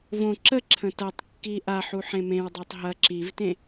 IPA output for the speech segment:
v õ ǁ ə ǁʰ ə̃ t ɐ tˤ kː i ʔ a ħ u ħ ẽ m ẽ w dˤ ɐ tˤ ɦ ɐ ǁ i v t ẽ

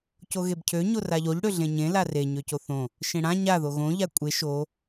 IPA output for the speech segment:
c o ɣ e b cʰ ø ɲ o r a ʎ o ʎ ɽ ø ɮ ẽ ɲ ẽ l a r e ɲ ø c o θ õ | ʃ ẽ ɽ ã ɲ a ð o ɣ õ ʎ a kʷʼ e ʃ o

